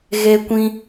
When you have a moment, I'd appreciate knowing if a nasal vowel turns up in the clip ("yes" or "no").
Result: yes